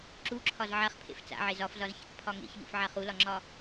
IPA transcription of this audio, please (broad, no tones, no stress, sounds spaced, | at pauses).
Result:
ǁ u ǁʰ ɒ z ʕ a χ pʰ ḛ f t͡s a̰ ʕ e z ɒ f z ɒ z ç ḛ k pʰ ɒ ŋ ḛ ç ʎ ṵ f ʕ a χ u l ɒ ŋ͡ǁ ɒ